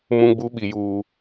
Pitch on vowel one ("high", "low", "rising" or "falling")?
high